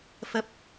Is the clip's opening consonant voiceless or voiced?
voiceless